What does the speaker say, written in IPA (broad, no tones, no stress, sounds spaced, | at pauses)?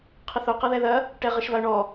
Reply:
qʰ ɘ θ o q ɐ ð ɛ ð ɐ | ʈ ɛ ʁ ɘ ʃ v a ʊ̯ ɳ ɔ